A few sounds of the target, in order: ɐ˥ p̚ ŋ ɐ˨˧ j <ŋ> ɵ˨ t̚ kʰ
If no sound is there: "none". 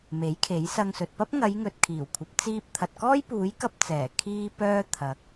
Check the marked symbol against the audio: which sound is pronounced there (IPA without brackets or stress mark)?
ŋ